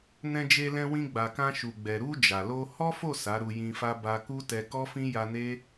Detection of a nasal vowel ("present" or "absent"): present